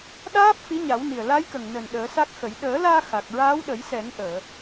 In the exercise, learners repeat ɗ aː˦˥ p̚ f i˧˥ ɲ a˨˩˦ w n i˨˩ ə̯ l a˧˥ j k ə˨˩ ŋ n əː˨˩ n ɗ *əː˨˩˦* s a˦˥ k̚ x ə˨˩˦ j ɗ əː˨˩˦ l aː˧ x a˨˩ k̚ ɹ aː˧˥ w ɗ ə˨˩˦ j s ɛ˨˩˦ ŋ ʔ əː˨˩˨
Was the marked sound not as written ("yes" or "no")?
no